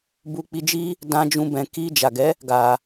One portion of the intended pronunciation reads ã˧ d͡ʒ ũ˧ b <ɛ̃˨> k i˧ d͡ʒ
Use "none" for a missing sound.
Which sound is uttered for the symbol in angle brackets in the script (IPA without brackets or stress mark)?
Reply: ɛ̃˨